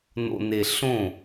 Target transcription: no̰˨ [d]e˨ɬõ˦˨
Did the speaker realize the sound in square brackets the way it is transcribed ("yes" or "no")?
no